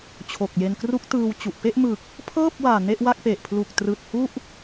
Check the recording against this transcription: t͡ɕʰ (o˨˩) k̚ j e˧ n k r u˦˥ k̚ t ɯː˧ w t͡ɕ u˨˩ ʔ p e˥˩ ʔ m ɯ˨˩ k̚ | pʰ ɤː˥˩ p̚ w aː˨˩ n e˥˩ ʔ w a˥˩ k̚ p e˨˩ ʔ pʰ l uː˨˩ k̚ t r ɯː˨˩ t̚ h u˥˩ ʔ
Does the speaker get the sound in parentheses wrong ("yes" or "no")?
no